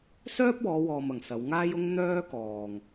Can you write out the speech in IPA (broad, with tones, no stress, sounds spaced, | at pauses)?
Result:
s œː˥ p̚ w ɔː˨˧ w ɔː˨ m ɐ˨˩ ŋ s ɐ˨˧ w ŋ aː˥ j ʊ˥ ŋ n̪ œː˥ k ɔː˨ ŋ